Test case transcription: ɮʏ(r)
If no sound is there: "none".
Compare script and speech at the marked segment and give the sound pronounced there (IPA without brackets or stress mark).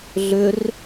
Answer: r